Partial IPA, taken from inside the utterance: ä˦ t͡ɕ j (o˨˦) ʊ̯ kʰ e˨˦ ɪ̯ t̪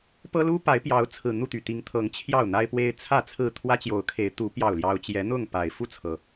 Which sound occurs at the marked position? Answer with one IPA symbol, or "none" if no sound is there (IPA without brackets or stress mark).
o˨˦